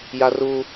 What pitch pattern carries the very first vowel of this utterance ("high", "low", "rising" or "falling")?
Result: high